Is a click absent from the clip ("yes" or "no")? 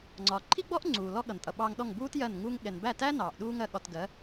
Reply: no